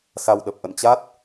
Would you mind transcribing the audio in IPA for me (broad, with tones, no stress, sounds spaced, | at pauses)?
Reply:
s a˧ w ɗ ə˨˩ p̚ ʔ ə̰˧˨ n t͡ɕ a˦˥ t̚